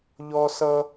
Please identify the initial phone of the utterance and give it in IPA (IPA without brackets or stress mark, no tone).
ʎ